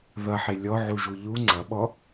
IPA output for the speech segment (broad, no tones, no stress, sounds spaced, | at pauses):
ð ʌ ħ ɪ lʲ ɔ ʕ u ʒ u ʎ u ŋ͡ǀ ʌ ɓ ɔ